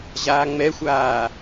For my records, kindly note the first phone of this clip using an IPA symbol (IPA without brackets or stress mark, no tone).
ʑ